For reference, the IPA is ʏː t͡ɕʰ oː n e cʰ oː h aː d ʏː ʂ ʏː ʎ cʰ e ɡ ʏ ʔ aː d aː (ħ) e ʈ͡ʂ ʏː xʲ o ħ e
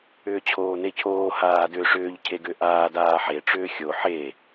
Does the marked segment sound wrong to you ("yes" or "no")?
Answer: no